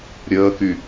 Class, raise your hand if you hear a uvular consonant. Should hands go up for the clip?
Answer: no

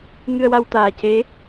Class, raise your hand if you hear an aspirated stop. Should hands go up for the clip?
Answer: no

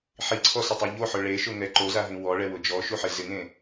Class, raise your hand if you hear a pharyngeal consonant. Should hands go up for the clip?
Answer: yes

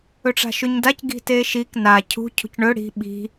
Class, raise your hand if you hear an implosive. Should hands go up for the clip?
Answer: yes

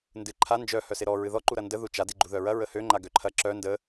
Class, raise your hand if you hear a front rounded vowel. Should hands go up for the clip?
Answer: yes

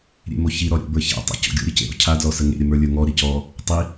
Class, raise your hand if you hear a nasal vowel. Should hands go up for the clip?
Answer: no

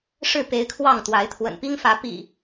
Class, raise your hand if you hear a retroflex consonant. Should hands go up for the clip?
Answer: yes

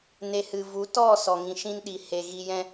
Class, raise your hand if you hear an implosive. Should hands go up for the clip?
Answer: yes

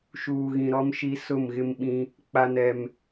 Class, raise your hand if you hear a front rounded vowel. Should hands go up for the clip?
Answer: no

